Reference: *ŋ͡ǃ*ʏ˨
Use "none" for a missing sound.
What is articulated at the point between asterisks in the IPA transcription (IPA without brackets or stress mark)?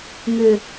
ŋ